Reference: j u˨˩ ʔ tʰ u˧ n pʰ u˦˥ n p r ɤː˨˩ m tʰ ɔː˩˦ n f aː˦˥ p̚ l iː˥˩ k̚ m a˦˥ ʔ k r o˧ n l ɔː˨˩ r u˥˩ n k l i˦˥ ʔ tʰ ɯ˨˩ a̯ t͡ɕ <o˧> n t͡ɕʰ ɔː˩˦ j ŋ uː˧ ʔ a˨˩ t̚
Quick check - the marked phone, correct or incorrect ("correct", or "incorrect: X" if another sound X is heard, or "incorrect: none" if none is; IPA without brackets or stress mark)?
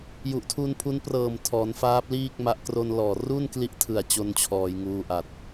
correct